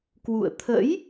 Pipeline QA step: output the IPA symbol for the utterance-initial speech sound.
k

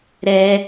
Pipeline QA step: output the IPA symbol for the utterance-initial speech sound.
ɾ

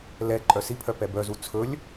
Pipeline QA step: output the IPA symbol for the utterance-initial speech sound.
l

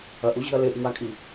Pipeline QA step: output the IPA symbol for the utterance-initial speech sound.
ɐ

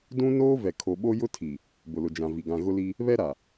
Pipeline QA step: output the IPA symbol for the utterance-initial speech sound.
d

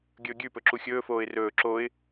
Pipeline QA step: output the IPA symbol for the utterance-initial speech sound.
ɡʲ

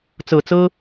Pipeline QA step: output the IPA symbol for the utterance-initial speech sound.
t͡s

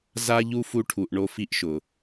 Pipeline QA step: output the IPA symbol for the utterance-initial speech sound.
z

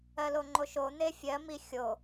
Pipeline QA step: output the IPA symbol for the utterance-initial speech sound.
ɜ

